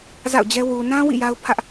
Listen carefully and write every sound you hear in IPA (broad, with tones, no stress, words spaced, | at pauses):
za̰˦˨ʊ̯d͡ʑɛ˦ wu˨nã˦ wḭ˦˨ ja˦ʊ̯pʰä˦ʔ